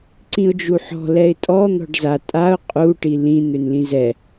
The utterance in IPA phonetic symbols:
ǀ ĩ ʊ̯ d͡ʒ u ħ ɔ̤ l ɛ ɪ̯ tʼ ɔ n̪ ɔ̤ ɖ z a tʼ a ʊ̯ qʼ u ʈ i l ĩ n̪ ø n l ĩ z ɛ

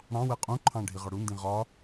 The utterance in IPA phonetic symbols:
ɽ ɑ̃ w ɛ qʼ ũ ǃʰ ɑ̃ ɖʱ i ʁ ɒ ɽ u n d ĩ ʁ ɒ

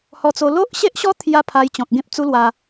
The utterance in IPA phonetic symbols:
h ɔ˧ t͡s o˧ l o˦ ʔ ɕ e˦ ʔ ɕ ɔ˦ t̪ʰ j a˧ pʰ a˧ j t͡ɕ ɔ̃˨ k̚ ɡ ẽ˦ p̚ t͡s u˦ l w a˧

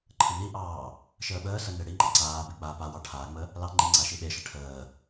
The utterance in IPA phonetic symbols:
ǃʰ ə n i ʔ ɑː | ʃ əː ɓ əː s ə n e ɽ i ŋ͡ǃ a ǀ aː b i k͡p aː p a w ɑ ʈʰ a ŋ͡m ə | l ɑ ŋ͡ǃ i ŋ͡ǀ a ʃ i ɓ e ʃ ə ʈʰ əː

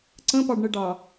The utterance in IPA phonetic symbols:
ǀ ə̃ p ɑ ɖ ɳ ə ɖ ɑ

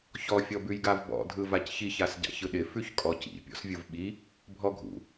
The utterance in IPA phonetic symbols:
ç ɔ fʲ ɔ b ʉ j ɡ a v b ɔ̰ dʱ ɯ v a c ç i ç a s ɟ a̰ ç ɯ ɗ ɪ f ʉ ç kʼ ɔ c ḭ pʲ ɔ̰ s vʲ ɯ v ɓ i | bʱ ɔ ɡʱ ṵ

